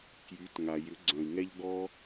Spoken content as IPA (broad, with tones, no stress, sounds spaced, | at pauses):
k j y˩˧ t ŋ a˩ j ʏ˩˧ ɡ͡ǀ œ̃˩ i̯ ŋ ɛ˧ ʎ ɡ ɔ˥